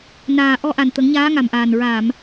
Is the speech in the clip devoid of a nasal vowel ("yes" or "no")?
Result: yes